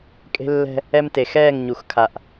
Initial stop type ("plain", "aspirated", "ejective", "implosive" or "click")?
ejective